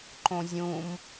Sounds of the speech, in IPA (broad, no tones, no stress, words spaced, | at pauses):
ǃõzʲũm